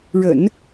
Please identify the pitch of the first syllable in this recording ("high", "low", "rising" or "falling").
low